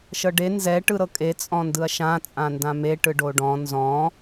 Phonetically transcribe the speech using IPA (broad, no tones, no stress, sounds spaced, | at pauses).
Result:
ʃ ɤ ɖ e n z ɛ ʈ ɯ ɾ ɤ kʼ e t͡sʼ ɔ̃ n d ɯ ɐ̯ ʃ ã t͡sʼ ã n d ã m e ʈ ɯ ɖ o ɖ ɔ̃ n z ɔ̃